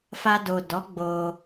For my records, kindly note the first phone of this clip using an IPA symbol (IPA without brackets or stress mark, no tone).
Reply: f